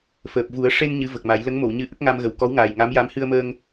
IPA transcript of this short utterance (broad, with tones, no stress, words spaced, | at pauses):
fəː˨˩p̚vu˨˩˦ə̯ ʂe˧n ɲɨ˧˥və˨˩k̚ma˨˩˦j lə˧˥ŋmo˨˩˨wɲɨ˧˥ʔə˦˥k̚ ŋa˧mɣə˨˩w kɔ˧˥wŋaː˨˩j ŋa˧˥m ja˧˥mhɨ˧ə̯məː˧ŋ